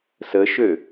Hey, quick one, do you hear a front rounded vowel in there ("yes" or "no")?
yes